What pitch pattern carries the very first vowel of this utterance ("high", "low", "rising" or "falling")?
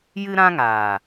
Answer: high